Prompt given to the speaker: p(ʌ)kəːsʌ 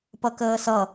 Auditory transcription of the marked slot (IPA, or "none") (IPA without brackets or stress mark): ʌ